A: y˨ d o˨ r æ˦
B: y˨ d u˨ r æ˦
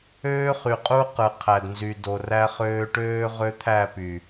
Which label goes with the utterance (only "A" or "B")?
A